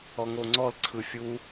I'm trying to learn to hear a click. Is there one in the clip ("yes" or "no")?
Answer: yes